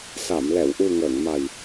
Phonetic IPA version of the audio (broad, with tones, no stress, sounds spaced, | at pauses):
s a˨˩˨ m l ɛ˨˩˨ w ʔ u˨˩ ŋ əː˨˩˨ ŋ m a˨˩ j